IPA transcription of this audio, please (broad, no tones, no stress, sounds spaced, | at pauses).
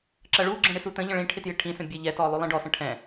ǁ ɐ ɭ u ɡ͡ǁ ɛ̃ ɽ ɪ s u t ə̃ ʎ ə̃ ɭ ĩ ʈʰ ɪ t j ɪ ʈʰ ĩ s ə̃ bʲ e ʎ ɛ t ɔ lˠ o lˠ ĩ ɖ ɔ s ə̃ ʈʰ ɛ̃